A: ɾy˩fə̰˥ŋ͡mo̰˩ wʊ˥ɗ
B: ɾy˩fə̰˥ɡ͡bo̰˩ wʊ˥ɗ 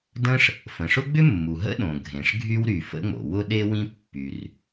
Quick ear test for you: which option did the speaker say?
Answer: A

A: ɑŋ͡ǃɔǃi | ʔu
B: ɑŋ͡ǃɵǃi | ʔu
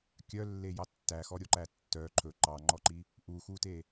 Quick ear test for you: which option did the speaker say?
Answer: A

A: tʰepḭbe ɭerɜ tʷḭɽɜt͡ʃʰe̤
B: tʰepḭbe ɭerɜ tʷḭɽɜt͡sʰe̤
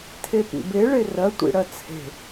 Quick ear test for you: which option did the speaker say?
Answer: B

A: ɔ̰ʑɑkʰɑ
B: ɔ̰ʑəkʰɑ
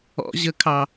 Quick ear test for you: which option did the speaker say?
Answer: B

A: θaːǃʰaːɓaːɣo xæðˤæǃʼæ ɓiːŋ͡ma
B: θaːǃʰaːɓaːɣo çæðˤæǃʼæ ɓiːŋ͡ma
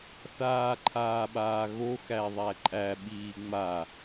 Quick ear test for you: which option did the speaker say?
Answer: A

